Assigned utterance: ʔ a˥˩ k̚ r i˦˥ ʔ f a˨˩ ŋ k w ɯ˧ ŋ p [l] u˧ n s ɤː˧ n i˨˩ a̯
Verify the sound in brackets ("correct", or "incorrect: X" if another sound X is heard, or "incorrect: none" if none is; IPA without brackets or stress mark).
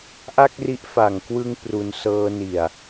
incorrect: r